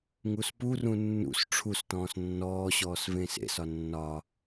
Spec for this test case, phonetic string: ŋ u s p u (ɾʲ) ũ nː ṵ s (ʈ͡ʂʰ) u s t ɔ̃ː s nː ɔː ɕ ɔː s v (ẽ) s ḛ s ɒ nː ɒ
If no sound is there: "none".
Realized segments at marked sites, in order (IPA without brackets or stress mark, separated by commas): r, ʈ͡ʂʰ, ẽː